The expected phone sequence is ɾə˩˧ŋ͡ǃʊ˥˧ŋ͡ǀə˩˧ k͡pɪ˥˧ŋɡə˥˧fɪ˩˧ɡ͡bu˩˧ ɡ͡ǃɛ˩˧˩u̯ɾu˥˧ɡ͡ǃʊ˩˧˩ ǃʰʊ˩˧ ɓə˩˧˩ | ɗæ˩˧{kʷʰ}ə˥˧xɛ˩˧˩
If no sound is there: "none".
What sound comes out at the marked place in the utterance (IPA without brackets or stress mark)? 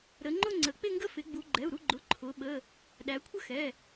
kʷʰ